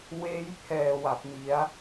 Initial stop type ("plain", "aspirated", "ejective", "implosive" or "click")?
aspirated